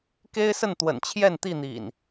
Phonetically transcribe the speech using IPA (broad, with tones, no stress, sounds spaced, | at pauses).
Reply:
k e˦ ɪ̯ s ə˥˨ n t̪ w ə̰˨˩ n t͡ɕʰ j ɛ˥˨ n t̪ i˥˨ n̪ ḭ˨˩ n